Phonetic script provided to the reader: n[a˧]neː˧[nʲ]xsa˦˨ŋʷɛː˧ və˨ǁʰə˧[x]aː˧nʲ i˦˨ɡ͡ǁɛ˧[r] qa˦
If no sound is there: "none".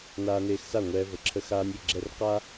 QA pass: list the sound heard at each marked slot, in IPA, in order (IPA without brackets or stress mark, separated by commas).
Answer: aː˧, none, x, r